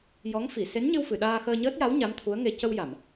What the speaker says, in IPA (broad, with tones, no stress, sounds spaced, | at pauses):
j ɔ˧˥ ŋ f i˨˩˨ s e˧˥ n ɲ ɨ˧ w f ɨ˨˩˨ ɗ aː˧ x əː˧ ɲ əː˦˥ t̚ j a˧˥ w ɲ a˧˥ m t̪ʰ u˧˥ ə̯ ŋ e˧ c ə˧ w j a˨˩˨ m